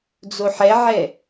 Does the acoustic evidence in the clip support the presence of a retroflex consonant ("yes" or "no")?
no